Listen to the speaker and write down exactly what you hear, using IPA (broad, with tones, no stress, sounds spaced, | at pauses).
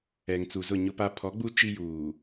ɛ˨ ŋ t͡s u˨ z ʊ˦˨ ɲ ʊ˦ p a˦ pʰ ɔ˨˦ ɡ͡b u˦ t͡ʃ i˦ j uː˨